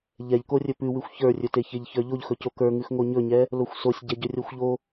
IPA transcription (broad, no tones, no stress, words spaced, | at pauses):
ʎɛʎko rʲɵpʉwʉxʷ çə˞rʲɵte çeʎçə˞ʎoʎ xɵcokə˞ŋʉx ŋoɲɵɲɛ | loxʷsosʲ ɟɛɟɵrʲoxʷʎo